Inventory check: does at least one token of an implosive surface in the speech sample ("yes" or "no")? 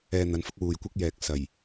no